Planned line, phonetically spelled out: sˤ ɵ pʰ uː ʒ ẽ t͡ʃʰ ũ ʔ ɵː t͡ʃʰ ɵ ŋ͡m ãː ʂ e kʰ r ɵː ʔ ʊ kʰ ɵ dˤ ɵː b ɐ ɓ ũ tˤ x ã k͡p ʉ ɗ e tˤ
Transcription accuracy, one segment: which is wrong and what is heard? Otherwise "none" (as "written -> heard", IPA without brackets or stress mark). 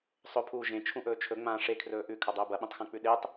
ʊ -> ʉ